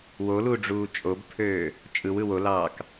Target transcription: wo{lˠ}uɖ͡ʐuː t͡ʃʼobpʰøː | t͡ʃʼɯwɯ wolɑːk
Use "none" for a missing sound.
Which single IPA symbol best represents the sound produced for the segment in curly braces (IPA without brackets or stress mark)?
l